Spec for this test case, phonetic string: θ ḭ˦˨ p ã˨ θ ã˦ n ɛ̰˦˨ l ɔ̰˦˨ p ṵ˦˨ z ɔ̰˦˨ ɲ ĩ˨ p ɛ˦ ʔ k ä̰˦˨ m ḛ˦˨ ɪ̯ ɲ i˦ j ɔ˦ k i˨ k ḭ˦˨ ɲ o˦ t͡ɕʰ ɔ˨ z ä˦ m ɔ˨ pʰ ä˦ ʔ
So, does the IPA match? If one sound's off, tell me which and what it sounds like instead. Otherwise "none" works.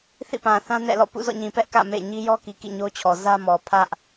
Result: none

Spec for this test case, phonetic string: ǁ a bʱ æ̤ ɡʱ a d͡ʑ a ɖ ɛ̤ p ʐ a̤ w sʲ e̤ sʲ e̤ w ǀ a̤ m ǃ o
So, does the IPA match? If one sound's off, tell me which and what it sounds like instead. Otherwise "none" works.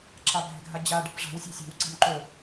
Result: æ̤ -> ɛ̤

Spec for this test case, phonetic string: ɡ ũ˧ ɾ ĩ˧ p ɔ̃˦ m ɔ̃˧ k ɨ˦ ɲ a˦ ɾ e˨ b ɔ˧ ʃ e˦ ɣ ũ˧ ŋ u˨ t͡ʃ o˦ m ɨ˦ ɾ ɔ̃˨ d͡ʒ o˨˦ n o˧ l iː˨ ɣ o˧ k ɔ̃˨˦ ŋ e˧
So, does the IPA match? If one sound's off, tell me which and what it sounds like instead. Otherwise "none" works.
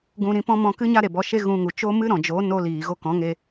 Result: none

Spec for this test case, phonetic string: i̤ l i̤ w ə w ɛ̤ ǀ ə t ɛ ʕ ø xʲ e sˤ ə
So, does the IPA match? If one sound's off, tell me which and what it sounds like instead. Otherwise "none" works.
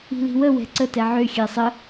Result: e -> ɛ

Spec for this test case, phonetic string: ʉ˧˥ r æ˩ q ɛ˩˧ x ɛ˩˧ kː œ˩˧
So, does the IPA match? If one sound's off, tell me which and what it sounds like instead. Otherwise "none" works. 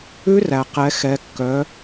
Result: none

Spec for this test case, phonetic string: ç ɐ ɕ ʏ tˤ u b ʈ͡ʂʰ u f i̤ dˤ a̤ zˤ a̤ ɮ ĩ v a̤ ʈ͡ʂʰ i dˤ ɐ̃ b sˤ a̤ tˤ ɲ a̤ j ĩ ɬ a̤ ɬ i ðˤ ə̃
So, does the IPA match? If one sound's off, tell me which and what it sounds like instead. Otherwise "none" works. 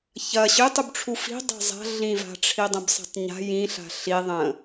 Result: none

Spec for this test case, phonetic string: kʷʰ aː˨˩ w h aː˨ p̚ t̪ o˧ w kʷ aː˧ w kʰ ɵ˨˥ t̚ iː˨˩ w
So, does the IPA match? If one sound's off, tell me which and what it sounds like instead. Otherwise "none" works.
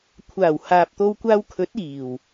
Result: none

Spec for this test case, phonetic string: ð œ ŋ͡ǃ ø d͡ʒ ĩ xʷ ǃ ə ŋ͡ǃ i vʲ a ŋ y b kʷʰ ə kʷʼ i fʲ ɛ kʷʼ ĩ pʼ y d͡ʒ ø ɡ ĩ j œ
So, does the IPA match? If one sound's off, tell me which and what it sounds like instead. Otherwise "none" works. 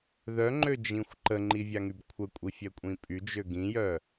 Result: none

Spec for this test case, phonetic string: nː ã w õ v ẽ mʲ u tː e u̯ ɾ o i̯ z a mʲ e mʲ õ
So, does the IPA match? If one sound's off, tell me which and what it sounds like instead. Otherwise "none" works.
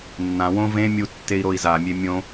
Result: u̯ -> i̯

